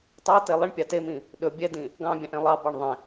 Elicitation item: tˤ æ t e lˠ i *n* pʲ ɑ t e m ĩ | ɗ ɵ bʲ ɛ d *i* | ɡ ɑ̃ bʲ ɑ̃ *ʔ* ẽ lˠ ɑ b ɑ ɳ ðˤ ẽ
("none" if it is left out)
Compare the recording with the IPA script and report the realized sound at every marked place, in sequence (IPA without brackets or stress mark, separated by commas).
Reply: ɳ, ĩ, ʔ